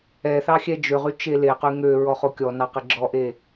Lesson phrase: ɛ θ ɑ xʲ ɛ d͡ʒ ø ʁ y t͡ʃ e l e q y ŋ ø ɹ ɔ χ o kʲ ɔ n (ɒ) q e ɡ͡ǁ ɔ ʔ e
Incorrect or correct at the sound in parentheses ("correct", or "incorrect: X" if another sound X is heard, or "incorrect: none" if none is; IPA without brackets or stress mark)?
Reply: incorrect: ɑ